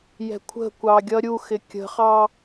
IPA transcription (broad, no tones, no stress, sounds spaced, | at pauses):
j ɛ̤ kʷʰ ə̤ kʷ ɑ ɡʲ ʌ ɾʲ u x ɪ kʲ ə̤ χ ɑ